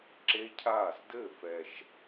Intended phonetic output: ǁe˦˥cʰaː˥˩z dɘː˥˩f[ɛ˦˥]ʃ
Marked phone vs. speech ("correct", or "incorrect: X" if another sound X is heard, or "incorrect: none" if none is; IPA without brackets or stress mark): incorrect: ɛ˨˩